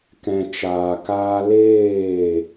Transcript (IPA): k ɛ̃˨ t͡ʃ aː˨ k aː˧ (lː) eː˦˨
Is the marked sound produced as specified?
no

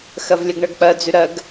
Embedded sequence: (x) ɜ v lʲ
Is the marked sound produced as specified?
yes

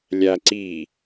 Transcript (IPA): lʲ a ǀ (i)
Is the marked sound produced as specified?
yes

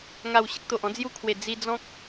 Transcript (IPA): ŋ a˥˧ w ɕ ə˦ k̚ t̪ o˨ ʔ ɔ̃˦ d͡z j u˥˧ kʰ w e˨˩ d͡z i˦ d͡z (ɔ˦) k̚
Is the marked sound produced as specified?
no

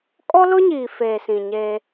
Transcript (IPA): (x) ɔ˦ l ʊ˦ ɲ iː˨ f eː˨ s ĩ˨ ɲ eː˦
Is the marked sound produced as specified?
no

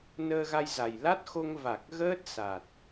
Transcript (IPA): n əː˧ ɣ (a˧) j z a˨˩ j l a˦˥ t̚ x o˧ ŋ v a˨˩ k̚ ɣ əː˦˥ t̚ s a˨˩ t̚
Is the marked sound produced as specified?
yes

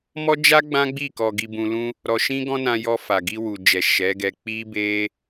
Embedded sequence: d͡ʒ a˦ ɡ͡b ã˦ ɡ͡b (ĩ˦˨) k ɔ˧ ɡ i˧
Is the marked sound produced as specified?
no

